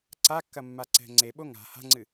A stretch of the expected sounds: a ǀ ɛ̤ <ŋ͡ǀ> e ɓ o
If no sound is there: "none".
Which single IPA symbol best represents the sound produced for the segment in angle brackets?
ŋ͡ǀ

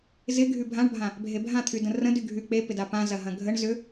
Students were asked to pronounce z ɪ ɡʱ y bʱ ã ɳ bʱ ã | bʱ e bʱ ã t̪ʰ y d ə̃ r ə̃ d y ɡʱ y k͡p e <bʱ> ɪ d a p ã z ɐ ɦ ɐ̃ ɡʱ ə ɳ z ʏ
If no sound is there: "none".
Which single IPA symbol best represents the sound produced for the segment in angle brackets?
p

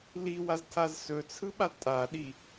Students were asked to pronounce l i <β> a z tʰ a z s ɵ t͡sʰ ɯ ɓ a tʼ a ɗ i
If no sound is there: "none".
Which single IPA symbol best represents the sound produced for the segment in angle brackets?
w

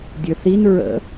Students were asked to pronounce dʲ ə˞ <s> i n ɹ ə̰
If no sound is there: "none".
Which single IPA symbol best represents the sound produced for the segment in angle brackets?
θ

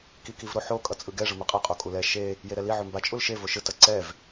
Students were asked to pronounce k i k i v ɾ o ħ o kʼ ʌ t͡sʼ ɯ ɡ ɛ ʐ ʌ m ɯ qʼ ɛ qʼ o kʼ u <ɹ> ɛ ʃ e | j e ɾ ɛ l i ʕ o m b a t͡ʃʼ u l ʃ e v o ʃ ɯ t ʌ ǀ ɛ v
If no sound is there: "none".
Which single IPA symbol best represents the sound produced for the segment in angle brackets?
l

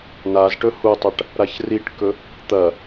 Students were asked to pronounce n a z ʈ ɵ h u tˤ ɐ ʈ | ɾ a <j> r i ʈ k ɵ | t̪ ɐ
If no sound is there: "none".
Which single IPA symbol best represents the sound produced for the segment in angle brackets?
ç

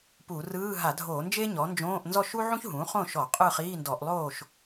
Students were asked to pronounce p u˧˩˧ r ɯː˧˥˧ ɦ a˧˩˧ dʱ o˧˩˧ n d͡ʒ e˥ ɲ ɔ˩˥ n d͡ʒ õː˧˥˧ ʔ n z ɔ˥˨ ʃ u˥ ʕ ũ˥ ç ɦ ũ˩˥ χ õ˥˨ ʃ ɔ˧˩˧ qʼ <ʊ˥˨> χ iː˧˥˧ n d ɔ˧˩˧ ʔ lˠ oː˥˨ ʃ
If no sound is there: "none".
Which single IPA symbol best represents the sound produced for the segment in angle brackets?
ɯ˥˨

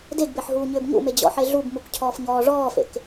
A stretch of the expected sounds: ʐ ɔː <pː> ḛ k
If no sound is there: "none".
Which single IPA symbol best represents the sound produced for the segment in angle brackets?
f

